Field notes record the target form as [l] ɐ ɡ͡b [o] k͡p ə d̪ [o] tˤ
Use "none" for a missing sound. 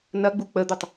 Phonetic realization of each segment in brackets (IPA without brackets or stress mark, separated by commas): n, u, ɵ